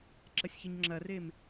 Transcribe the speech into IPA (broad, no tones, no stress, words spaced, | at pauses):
ǁɐsʲçɘɲŋ͡ǁɐrem